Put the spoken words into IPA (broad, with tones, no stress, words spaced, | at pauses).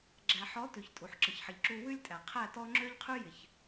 ɡ͡ǁæ˨ħɔ˨˦ tʉ˨ç tʼu˨ħǁə˨çħə˨ʎǁu˧ wʉ˦lʲtʼæ˨ qʰæ˦˨tɔ˦ ŋ͡ǁø˦ʎqʰʉ˦ jɪ˨ç